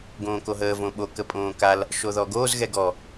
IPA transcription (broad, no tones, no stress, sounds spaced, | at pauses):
ɡ õː k o ɦ əː v õ ɓ o k ə pʼ õː k a l | ʃ o ð ɔ ɡ oː z ɣ ɛ ɡ ɔ